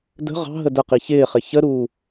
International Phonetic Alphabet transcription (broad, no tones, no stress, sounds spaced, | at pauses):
d ə̤ ʁ ɑ̤ ɦ ə d ə q i ç ɪː χ ɪ ç ə ɾ uː